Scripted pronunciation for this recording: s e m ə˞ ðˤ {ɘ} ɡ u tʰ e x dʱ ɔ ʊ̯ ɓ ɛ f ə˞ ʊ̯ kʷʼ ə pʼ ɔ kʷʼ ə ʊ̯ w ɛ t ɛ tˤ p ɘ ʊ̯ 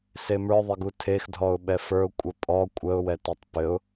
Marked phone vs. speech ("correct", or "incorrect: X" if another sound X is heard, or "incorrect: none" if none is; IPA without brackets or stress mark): correct